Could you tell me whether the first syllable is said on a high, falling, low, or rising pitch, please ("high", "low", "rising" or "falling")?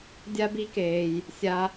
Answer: high